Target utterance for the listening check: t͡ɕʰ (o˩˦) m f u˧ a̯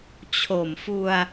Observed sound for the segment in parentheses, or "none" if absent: o˨˩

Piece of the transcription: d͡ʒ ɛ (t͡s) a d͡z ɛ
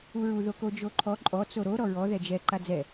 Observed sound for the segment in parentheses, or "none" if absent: ǃ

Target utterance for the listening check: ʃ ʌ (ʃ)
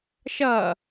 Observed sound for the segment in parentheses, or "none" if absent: none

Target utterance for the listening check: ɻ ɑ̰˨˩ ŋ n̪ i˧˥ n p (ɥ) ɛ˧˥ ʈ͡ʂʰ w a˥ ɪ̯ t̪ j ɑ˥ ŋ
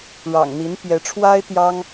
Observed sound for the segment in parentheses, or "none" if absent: j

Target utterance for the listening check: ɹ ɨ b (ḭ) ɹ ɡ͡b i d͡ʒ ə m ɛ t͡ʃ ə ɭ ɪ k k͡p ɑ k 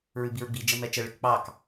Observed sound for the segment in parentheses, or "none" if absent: i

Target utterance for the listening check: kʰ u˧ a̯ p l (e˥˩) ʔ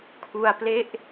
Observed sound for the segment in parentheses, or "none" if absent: e˥˩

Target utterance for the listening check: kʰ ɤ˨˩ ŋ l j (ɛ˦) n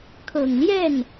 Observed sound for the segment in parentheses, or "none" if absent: ɛ˥˩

